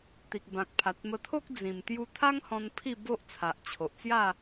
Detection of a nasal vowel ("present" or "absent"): present